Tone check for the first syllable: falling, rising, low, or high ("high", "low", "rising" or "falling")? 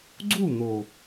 falling